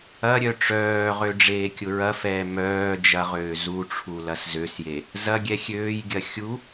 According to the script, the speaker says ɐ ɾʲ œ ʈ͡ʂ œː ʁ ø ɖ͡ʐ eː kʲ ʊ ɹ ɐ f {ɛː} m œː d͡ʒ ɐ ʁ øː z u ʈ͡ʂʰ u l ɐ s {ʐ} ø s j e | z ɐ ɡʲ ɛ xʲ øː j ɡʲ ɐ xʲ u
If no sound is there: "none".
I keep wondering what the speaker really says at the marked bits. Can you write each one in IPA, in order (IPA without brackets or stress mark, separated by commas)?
ɛː, z